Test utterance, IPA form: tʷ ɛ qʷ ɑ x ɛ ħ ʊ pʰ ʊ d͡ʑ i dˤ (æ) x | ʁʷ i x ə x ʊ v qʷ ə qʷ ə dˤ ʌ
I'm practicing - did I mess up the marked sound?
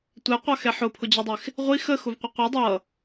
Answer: yes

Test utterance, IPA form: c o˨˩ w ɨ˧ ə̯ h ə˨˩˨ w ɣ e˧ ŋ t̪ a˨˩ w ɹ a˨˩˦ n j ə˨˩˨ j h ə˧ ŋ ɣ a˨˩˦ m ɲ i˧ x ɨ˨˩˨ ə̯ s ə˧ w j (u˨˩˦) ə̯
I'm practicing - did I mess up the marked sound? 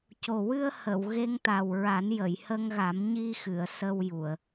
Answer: yes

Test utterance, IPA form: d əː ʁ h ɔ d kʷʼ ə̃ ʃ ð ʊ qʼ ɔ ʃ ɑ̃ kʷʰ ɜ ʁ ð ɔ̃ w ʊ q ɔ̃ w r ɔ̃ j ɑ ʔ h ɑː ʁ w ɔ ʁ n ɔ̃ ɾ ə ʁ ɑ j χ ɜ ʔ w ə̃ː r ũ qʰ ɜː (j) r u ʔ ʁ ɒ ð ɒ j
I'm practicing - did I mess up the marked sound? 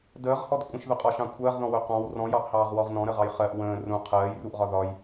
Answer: no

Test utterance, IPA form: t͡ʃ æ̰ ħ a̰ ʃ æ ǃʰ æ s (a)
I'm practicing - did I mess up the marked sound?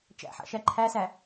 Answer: yes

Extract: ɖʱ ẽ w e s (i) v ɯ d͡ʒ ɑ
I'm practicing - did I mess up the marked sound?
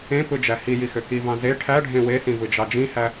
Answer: yes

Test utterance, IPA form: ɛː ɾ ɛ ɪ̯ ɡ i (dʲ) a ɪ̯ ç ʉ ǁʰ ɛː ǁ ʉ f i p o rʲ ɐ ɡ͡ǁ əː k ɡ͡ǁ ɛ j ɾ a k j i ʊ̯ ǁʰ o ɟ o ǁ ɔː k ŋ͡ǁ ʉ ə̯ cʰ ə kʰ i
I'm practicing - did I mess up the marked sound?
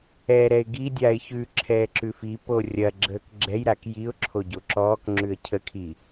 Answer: no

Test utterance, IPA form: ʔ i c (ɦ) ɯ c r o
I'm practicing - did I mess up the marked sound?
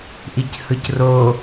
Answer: yes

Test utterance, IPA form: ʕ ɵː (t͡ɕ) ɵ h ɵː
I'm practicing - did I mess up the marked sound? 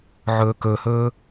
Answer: yes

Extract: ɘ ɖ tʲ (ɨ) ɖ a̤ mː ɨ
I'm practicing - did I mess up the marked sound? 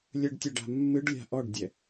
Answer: yes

